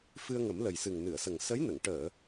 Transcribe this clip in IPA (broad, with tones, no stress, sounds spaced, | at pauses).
f ɨ˧ ə̯ ŋ ə˨˩˦ m l ə˨˩ j s ɨ˨˩ ŋ n ɨ˨˩˨ ə̯ s ə˨˩ ŋ s ə˧˥ j n ə˨˩˨ ŋ ʈ əː˨˩˨